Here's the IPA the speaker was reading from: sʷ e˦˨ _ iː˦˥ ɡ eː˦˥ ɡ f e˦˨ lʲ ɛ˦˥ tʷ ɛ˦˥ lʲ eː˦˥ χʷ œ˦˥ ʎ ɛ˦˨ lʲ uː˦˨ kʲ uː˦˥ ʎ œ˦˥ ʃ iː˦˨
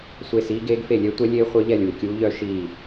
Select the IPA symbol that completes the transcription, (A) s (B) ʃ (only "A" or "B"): A